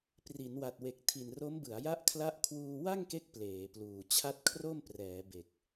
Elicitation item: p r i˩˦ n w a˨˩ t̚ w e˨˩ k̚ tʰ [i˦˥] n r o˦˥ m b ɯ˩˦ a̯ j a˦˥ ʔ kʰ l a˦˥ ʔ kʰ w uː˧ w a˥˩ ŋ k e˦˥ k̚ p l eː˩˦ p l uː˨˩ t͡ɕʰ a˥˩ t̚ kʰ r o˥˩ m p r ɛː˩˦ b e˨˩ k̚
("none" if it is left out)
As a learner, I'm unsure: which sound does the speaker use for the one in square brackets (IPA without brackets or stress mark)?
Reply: i˨˩